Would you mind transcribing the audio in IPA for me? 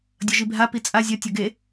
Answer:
dʲ ʌ ʒ i bʱ a p i t͡sʼ a zʲ ʌ tʲ ʌ ɡ e

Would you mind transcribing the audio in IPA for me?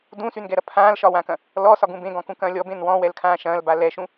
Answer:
d ũ s y n ɡ ɛ ɾ ɐ pʰ ãː l ʃ ɒ w ã k ɐ̃ | l ɔ s ɒ ɡ ũ b ẽ ɡ ɔ̃ k ũ k ɐ̃ː lʲ ɔ b ẽ n w ɔ̃ w ɛ l kʰ ãː ʃ ɐ̃ː l b a l ɛ ʃ ũ

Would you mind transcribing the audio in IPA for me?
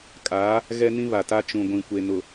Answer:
kʼ aː˨˦ | ɣ ɛ˦ n ĩ˦ β a˨ t a˦ t͡ʃ ũ˨ ɡʷ ĩ˨ kʷ e˨ n ʊ˨

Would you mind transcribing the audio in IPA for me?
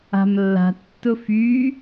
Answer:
a̤ m lː a̤ tː ʊ f y

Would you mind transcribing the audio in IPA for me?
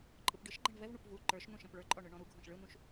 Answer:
ǃʼ ɯ p ɖ ɯ ʃ ɡ͡ǃ ɛ̃ ɳ v ɛ v ɳ u p v u ǃ ə˞ ʃ n ũ ʃ ɛ̃ p ɭ ə˞ ǃʼ ɔ ɳ ɯ ɳ ɔ̃ ɾ u ɡʱ ɔ̃ ʃ ɭ ɯ n ũ ʃ

